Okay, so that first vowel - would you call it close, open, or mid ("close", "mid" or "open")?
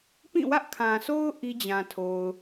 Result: close